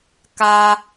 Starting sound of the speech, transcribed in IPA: k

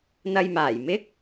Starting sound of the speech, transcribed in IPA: n̪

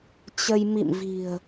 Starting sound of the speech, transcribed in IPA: t͡ɕ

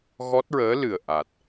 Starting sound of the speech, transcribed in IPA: ɣ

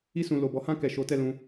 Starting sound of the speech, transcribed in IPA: i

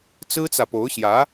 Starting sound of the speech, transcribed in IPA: t͡s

